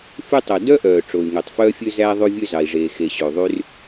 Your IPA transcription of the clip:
f y˥ tˤ o˩ d œ˥ ʔ œː˩ ʈ͡ʂ o˩ y̯ ŋ ø˩ tˤ f œː˥ fʲ ø˥ z æ˥ ðˤ ʉ˥ vʲ ø˥ z ɑ˩ i̯ ʐ eː˩ x e˩ ɕ ɵ˩ y̯ ðˤ y˥ r

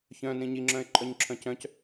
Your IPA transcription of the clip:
ç œ̃ n ĩ ɲ i ŋ͡ǁ œ̃ ɪ̯ ǃʼ œ ɲ ǁʰ œ̃ c œ̃ c

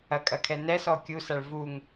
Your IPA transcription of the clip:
ɐ kʼ ɐ kʰ ɛ n ɛ s ɔ kʲ u s a ɭ v u ŋ

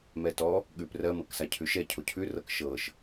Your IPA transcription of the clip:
m ɛ t ɔ | ɠ ʉ p r ɜ m ɤ k s a cʰ ʉ ʃ ɛ cʰ o cʰ ʉ r ɤ k ʃ ɤ ʃ

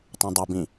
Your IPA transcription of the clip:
tˤ ẽ dˤ u b ĩ

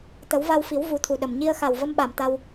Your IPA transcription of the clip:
t̪ ə˨˩˦ w v a˧ w f i˨˩˦ w v u˨˩˦ t̪ʰ u˨˩ ɗ ə˨˩ m ɲ i˧ ə̯ x a˨˩ w v ə˧ m ɓ a˨˩˨ m t̪ a˧ w

